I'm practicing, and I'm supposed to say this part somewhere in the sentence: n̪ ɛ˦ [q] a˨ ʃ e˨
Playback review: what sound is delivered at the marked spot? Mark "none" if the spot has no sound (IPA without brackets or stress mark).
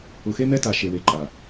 t